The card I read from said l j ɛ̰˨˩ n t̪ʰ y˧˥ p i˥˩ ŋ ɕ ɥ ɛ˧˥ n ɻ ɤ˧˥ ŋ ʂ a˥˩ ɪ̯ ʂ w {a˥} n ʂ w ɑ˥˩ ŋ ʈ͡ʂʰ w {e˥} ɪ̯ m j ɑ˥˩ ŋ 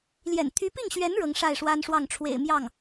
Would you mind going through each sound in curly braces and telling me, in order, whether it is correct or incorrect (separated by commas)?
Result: correct, incorrect